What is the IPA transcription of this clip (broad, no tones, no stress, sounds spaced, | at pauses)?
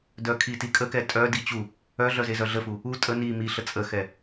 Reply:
d œ kʰ i t i kʼ ə k ɛ tʼ œ d i t͡ɕ u | œ ɮ œ z e z œ ɮ ə f u | u tʼ ə n i m i ɬ ə t͡sʼ ə x ɛ